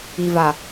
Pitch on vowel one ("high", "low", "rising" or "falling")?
low